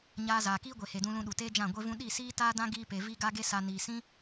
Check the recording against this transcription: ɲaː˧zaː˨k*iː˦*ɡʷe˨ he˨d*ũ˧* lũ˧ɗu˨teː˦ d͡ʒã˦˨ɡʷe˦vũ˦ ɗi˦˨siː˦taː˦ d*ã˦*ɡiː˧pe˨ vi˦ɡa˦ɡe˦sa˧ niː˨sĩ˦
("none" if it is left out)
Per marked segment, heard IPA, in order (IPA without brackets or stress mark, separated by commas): iː˦, ũ˧, ã˦